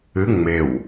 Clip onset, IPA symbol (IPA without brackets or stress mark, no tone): ɨ